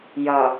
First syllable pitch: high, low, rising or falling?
low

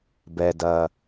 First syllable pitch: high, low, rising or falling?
low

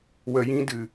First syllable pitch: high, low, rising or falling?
high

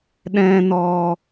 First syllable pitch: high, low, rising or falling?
low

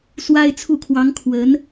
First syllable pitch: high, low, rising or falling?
high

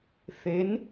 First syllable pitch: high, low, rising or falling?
rising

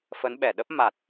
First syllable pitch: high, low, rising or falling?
rising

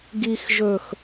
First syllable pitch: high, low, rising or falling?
low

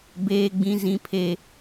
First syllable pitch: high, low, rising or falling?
high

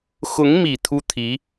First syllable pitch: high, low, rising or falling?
rising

